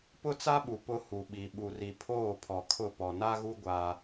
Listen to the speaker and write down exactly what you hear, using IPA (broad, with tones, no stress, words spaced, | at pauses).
pʊ˦t͡sa˦ɓu˨ pʊ˦hu˨ɓi˨ ɓu˨ri˨pʰoː˦˨ pʰɔ˨kʰʊ˦˨pɔ˨ na˦ɣu˦ ɡʷa˦